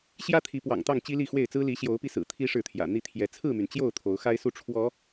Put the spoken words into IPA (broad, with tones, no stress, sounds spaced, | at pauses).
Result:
ɕ j ä˦ t̪ʰ i˨˦ p w ɑ̰˨˩ ŋ t̪ ɑ˥˨ ŋ t͡ɕ i˦ l i˥˨ x w e˥˨ ɪ̯ t͡s ɹ̩˦ l i˨˦ ɕ j o˨˦ ʊ̯ p i˧ s ɹ̩˨˩ t̪ʰ i˦ ʂ ɻ̩˥˨ t̪ʰ j ä̰˨˩ n̪ i˥˨ t̪ʰ j ɛ˨˦ t͡sʰ ɹ̩˥˨ m y˩ n t͡ɕ j o˥˨ ʊ̯ t̪ʰ o˨˦ ʊ̯ x a˦ ɪ̯ s u˥˨ ʈ͡ʂʰ w ɔ˨˦